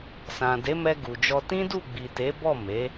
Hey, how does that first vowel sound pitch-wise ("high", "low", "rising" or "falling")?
low